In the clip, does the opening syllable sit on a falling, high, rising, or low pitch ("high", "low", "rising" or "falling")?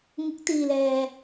rising